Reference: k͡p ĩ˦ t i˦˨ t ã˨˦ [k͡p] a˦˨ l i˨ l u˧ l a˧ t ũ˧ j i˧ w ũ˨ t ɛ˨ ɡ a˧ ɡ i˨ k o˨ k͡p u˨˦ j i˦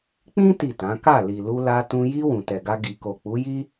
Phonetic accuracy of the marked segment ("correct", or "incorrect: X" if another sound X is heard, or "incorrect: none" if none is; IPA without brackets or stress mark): incorrect: k